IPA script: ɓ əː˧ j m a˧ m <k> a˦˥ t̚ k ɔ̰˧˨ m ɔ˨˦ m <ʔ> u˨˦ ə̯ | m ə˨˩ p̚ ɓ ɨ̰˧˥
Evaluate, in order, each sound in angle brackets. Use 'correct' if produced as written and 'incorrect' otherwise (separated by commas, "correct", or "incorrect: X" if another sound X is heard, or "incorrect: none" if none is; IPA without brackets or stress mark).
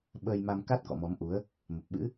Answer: correct, correct